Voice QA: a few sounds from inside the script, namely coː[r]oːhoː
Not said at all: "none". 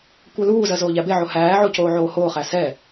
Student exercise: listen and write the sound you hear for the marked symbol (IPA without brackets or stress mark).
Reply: ʕ